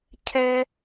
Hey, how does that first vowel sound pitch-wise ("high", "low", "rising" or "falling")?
high